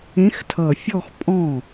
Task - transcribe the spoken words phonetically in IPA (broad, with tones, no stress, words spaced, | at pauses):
ẽ˧˥xtʰʌ˨˩ fʲɔ˥˧xpʼɔ̃˥˩